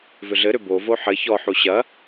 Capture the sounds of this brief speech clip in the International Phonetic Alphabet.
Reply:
v ʏ ɮ ɘ ɾ ʏ b o v o ħ ɘ ç ɔ ħ u ɕ ɐ

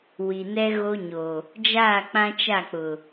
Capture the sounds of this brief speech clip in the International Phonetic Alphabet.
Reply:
w i˨ n ɛ˦ ɣ o˦ ɲ o˨ | d͡ʒ aː˦˨ k͡p ã˦ t͡ʃ a˦˨ k͡p ʊ˨

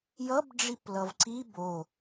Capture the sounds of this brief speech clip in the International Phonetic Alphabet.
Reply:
j ʌ b ɖ͡ʐ i p l ʌ v ǀ i b o

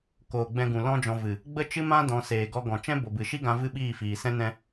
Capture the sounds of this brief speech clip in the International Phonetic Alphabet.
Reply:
k oː˨ ɡ͡b ɛ̃˧ ɡ ũ˨ l ɔ̃˦ d͡ʒ ɔ̃˧ v ɨ˨ | ɡ͡b ə˦ t͡ʃ ɨ˦ m ã˦ d ɔ̃˨˦ s eː˨ ɡ ɔ˧ ɡ ɔ̃˨ t͡ʃ ɛ̃˦ b o˨ b ɨ˨ ʃ i˦ ɡ ã˧ v ɨ˦ ɓ iː˦˨ f iː˨ s ɛ̃˦ n ɛ̃˦

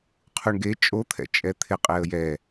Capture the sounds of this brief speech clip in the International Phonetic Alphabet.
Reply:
qʰ u ɳ ɡ e t͡ʃʼ o t̪ʰ ɛ̰ t͡ʃʼ ɛ t̪ʰ ɪ qʼ e ə̯ j ɛ

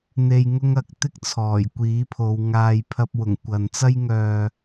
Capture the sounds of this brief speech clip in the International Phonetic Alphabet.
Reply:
n̪ e˧ j ŋ ʊ˥ ŋ ɐ˧ k̚ t̪ ɪ˥ k̚ t͡sʰ ɔː˨˩ j kʷ iː˨˥ pʰ o˨˧ w ŋ aː˨ j pʰ ɐ˧ p̚ w ʊ˨˩ ŋ kʷ ɐ˨ n t͡s ɐ˥ j ŋ œː˧

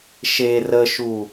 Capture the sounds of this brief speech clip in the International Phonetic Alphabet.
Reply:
ʃ e r ə ʃ u

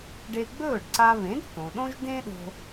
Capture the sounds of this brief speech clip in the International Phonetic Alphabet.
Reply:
ɖ e˧ ɡ͡b ɵː˥˩ ɖ ǀ a˧ β ẽ˩˥ d θ õ˩ ɗ õ˥ ʒ d ẽ˥ ɗ o̤˧

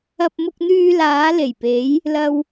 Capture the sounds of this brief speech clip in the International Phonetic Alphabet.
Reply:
ɐ˧ p̚ m ʊ˧ k̚ n̪ yː˧ l aː˨˧ l e˨˩ j p e˨˧ j | l ɐ˧ w

